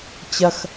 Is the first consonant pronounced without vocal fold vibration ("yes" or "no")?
yes